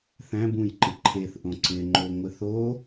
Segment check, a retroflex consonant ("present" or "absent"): absent